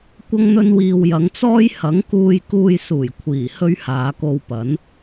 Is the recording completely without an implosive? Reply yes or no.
yes